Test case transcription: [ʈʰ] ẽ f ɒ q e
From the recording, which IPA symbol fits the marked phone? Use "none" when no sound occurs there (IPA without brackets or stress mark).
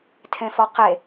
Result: tʰ